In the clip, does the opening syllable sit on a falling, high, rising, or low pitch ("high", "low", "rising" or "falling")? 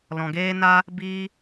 low